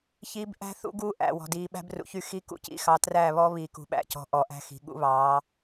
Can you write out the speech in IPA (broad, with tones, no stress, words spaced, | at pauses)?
çi˦b ʔæ̤˦θṵ˦ ɡuː˦ʔæ̰˨wɔ̤˨ diː˨ɓæ̤˦brṵ˨çy˦ xi˦ kṵ˨cḭ˨ xɑ˨ træː˦˨βɔː˦ βiː˨kṳ˨ɓæ̰˦˨cɔ̤˨˦ ʔɔ˨ʔæ̤˦xi̤˨ ɠṵ˦βɑː˨˦